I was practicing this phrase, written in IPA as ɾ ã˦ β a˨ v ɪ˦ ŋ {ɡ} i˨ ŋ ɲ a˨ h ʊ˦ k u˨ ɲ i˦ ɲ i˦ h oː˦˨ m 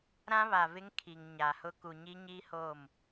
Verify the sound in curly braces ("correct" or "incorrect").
incorrect